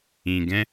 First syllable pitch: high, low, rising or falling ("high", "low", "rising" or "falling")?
low